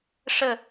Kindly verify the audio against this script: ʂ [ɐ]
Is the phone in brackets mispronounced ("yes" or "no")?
yes